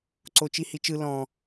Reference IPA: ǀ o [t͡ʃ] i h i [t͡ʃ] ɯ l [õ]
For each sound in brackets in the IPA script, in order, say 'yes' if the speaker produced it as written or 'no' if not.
yes, yes, no

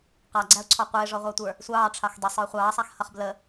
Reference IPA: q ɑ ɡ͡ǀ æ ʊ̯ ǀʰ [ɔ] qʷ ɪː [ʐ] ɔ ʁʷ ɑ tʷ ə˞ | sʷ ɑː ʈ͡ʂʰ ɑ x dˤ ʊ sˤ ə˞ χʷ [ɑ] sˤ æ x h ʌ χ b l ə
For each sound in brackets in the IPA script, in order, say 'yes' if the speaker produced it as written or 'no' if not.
yes, yes, no

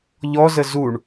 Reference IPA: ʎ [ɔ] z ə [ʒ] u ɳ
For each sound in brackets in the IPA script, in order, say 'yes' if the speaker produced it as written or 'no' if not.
yes, no

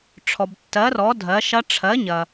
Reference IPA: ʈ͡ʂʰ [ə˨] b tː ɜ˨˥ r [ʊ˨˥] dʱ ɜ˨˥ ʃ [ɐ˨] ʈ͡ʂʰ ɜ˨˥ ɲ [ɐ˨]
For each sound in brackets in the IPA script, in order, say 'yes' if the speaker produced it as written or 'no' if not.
no, no, no, yes

